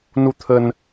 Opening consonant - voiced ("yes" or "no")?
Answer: yes